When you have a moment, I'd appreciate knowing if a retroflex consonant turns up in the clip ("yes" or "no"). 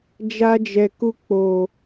no